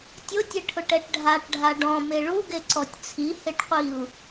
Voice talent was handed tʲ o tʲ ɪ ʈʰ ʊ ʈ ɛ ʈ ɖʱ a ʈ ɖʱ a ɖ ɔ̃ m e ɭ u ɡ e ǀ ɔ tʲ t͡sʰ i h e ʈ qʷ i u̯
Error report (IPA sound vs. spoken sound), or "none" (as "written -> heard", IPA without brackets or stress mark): none